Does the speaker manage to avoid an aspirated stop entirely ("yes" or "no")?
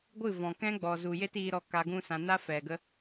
yes